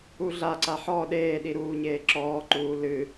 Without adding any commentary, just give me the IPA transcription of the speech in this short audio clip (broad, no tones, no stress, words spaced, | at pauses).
uɮaǀa ħɔ ɗeːɗi ɾuːɲeːǁɔːǃuː lɨ